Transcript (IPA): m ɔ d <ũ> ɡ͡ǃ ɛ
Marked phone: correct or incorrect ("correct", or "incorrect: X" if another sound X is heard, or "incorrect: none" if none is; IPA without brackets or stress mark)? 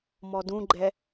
correct